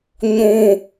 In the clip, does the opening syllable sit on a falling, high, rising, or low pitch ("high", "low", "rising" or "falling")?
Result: low